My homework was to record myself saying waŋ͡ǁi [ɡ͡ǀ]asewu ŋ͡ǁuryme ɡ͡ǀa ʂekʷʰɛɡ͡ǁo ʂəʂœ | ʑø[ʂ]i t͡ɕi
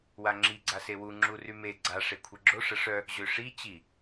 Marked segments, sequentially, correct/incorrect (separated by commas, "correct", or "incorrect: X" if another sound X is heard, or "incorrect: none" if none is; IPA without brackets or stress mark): correct, correct